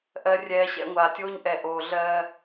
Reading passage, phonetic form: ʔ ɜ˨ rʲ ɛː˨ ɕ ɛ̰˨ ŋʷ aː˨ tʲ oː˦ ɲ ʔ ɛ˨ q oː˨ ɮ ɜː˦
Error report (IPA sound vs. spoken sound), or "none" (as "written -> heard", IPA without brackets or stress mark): q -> ʔ